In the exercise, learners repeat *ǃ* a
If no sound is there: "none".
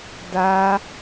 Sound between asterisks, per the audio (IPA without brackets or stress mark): d